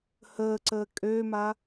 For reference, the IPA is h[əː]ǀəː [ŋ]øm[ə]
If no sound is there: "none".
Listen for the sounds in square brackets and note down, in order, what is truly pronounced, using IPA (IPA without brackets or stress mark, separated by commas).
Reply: əː, kʼ, a